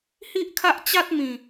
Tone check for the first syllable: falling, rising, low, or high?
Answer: high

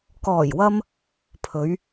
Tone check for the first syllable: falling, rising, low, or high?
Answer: low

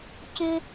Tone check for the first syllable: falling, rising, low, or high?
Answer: high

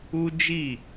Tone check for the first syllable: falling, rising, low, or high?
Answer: high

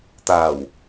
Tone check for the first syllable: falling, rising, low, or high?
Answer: low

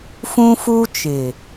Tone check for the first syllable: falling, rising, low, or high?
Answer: high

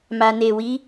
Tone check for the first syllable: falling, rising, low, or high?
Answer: low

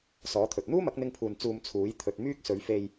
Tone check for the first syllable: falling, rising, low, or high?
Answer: rising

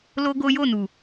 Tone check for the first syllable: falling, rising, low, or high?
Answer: high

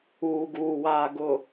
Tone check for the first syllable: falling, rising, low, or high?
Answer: low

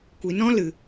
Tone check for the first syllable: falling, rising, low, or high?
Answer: low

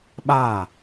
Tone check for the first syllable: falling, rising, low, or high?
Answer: falling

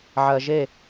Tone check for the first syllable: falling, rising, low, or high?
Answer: low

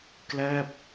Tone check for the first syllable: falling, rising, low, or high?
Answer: falling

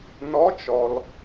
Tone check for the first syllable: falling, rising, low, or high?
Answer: rising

